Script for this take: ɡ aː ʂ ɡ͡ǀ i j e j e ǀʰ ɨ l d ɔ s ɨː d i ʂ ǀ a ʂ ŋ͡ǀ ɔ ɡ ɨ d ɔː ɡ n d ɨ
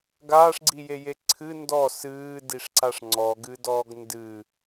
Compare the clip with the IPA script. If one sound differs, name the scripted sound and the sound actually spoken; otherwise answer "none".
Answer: l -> n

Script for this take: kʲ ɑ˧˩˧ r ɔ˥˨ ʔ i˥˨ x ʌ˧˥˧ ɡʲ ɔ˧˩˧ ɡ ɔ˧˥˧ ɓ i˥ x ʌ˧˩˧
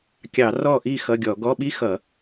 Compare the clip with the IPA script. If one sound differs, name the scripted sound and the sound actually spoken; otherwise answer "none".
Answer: none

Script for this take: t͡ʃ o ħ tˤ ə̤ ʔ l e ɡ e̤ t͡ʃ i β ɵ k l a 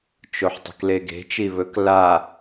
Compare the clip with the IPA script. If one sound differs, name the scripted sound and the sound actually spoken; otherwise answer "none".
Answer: ʔ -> k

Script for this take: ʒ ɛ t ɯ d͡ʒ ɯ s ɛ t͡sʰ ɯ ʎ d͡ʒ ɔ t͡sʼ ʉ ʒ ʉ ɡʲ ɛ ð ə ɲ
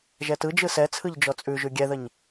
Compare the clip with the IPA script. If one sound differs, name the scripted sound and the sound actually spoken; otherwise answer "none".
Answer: none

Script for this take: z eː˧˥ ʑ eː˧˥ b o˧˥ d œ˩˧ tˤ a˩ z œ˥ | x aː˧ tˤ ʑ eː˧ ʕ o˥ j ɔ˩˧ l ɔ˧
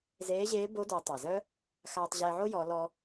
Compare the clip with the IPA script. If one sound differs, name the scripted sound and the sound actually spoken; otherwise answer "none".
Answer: none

